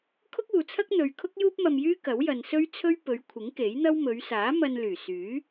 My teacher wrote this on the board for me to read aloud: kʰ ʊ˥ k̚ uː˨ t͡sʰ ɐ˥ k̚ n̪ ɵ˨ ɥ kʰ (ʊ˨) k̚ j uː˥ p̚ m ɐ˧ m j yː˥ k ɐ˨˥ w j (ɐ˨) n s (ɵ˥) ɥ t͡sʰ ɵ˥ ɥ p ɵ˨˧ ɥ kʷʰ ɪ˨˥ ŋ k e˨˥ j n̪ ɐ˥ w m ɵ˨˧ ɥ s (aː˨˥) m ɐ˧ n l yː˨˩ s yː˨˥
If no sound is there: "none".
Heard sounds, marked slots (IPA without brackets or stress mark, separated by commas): ʊ˥, ɐ˨, ɵ˥, aː˨˥